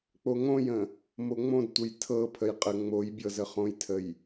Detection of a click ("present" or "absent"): absent